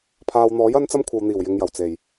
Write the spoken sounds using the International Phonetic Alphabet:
pʰ aː˨ w n̪ ɔː˨˥ j ɐ˥ n t͡s ɐ˥ m kʷʰ ɐ˨ w n̪ iː˨˩ w j ɪ˨˧ ŋ j ɐ˨˩ w t͡s e˨˩ j

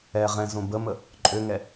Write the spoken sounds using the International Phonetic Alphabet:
ɛ ʁ ɛ̃ z õ b ə m ə | ǃʼ ø ŋ ɛ

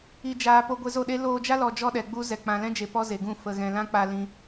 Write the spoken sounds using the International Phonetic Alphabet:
i˨ d͡ʒ aː˨ p o˧ ɡʷ e˧ z o˦˨ ɗ e˦ l oː˧ d͡ʒ a˦ l ɔ˨ d͡ʒ ɔ˦ ɗ ɛ˨ ɡ͡b u˦ z ɛ˨ k͡p ã˨ l ɛ̃˦ d͡ʒ e˨ p ɔ˦ z e˨ ɡ ũ˦˨ f ə˨ ɣ ɛ̃˨ l ã˦ k͡p a˧ l ĩ˧

